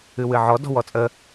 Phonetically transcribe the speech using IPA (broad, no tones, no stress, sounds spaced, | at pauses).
ɨ w ɨ ʕ ɔ d ɔ̤ w ɔ t͡sʼ ə